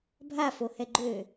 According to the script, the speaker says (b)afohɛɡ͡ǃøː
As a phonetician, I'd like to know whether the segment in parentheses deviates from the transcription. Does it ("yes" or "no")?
yes